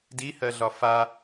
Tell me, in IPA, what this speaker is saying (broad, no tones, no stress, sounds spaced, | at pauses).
d i h ɜ ɮ ɒ f a